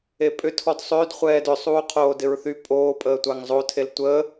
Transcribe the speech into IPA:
e pʼ ʏ tʰ ɔ d sˤ ø d χʷ ɛː d ʏ sˤ uː qʰ oː d ɪ ɹ θ y pʼ oː pʼ əː tʷ a ŋ zˤ o tʰ e l tʷ ə

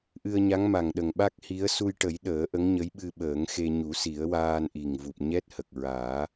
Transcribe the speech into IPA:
ʔ ɨ˧ ə̯ ɲ a˧˥ ŋ m a˨˩ ŋ ɗ ə˨˩ ŋ ɓ a˦˥ k̚ h i˧˥ ə̯ s u˧ j ʈ ə˨˩˦ j ɗ əː˨˩˦ ʔ ə˧˥ ŋ ɲ ə˧˥ j ɓ ɨ˧ ɓ əː˨˩˦ ŋ x e˧ ɲ u˨˩˦ s i˨˩˦ ə̯ w aː˧ n ʔ i˨˩ ŋ v u˨˩ p̚ ɲ ɛ˦˥ t̚ h ə˨˩ k̚ ɹ aː˨˩˦

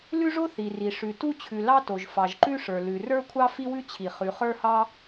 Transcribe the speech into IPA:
l ʉ˥ ʐ o˥ θ i˩ r i˩ ʂ ʉ˩ t u˥ t͡ɕʰ ʉ˩ l ɑ˥ t o˩ ʒ f ɑ˩ ʒ ǃ ʉ˥ ʂ ə˞˩ l ʉ˩ r ə˞˥ kʷʰ ɑ˥ f i˥ w ʉ˥ t͡ɕʰ i˩ χ ʉ˩ χ ə˞˥ h ɑ˥

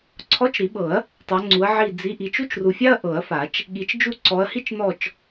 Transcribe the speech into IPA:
ǀʰ ɔ˧˥˧ t͡ʃ ɾ i˨˩˦ ɓ ɤ˨˩˦ ɐ̯ | tˤ a˨˦ ŋ͡ǀ u˨˦ ɐ̯ ʕ i˦˨ d͡z i˧˥˧ ʔ i˦˨ t͡ʃ u˥ t͡ʃ r u˨ fʲ a˥ ɐ̯ ʔ ɤ˨˩˦ ɐ̯ f a˨˩˦ t͡ʃ | ɠ i˨˦ t͡ʃ d͡ʒ u˦˨ ǀ ɔ˨˦ ɐ̯ h i˥ t͡ʃ n ɔ˦˨ t͡ʃ

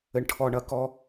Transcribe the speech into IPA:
ɘ˨ ɳ ʈʰ ɔ˨ ɳ ɐ˦ k ɔ˦

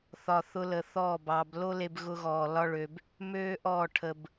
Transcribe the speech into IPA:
θ ɒ˨ θ ʊ˧ l ə˨ θ ɔː˦˨ b ɑ˧ b l o˦ l e˧ b ɣ ʊ˧ ɣ ɔː˨ l ɒ˦ ɭ ø˧ b | m øː˦ ʔ ɔ˦˨ ʈʰ ə˧ b

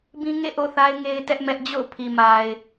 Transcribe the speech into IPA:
b ĩ˦ ŋ ḛ˦˨ ʔ o̰˦˨ θ a˦ ɪ̯ ŋ e˦ ɪ̯ t ɛ˦ ʔ m ɛ˦ ʔ d͡ʑ o̰˦˨ ʊ̯ pʰ i˨ m a˨ ɪ̯

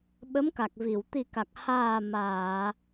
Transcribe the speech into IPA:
ɓ ə˧˥ m k a˨˩ k̚ v i˨˩˨ w t̪ i˨˩ k a˨˩ k̚ h aː˨˩ m aː˨˩˨

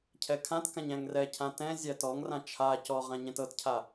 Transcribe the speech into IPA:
cʰ ɛ kʰ ã t k ã ɲ æ̃ ŋ r ɛ cʰ ã t ɛ̃ zʲ æ t ɔ ŋ r ã t͡ʃʰ a c ɔ ʁ ã ɲ ɛ̃ t ɤ t cʰ a

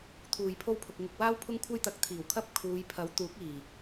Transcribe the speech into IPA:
t̪ʰ uː˨ j pʰ o˧ w pʰ ʊ˨ k̚ ŋ ɪ˧ k̚ w aː˥ w pʰ ʊ˥ ŋ kʷʰ ɐ˥ j t̪ ɐ˨˥ k̚ t̪ʰ iː˨˩ w kʰ ɐ˥ p̚ kʰ uː˨˧ j pʰ ɐ˨˥ w t̪ uː˨˥ k̚ iː˨˩

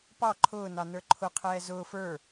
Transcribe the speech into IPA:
p ɑ ǃʰ ʊː n ɑ n ə˞ ǃʰ ʊ qʰ ɛː z ʊː f ə˞

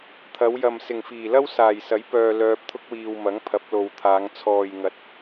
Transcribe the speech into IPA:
t̪ʰ ɐ˨˧ w j ɐ˨ m s ɪ˨˩ ŋ f iː˨˩ l ɐ˥ w s aː˨˩ j s ɐ˨˥ j p œː˨ l œː˧ p̚ t̪ʰ ʊ˥ k̚ w iː˨ w m ɐ˨˥ ŋ pʰ ɐ˨˥ p̚ l o˨ w t̪ʰ aː˨˧ ŋ t͡sʰ ɔː˨ j ŋ ɐ˨ t̚

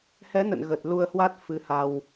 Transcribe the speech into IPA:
h ɛ˨˦ n ə̰˧˨ n ɣ ə˨˩ t̚ l u˧ ə̯ h w a˦˥ t̚ f ɨ˨˦ h a˧ w

